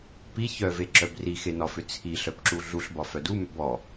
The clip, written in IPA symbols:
p i ç œ v e ǁ œ b r i x e n ɒ f ʏ t͡sʰ i ɬ œ p ǁ u ɮ u ɬ b ɒ f œ d u m ʏ b ɔ

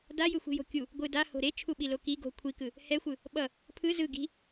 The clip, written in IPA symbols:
d a j ɯ xʷ i̤ j o̤ kʲ u | ɡʷ ɯ d a h o̤ ɾ e t͡ʃʰ u ɓ i l o k i ɡ o̤ kʷʰ i k ɯ | h ɛ xʷ ɯ | ɓ ʌ | pʰ ɯ z ɯ ɡ i̤

